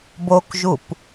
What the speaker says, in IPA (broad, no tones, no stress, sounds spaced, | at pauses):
b o k ʒ u p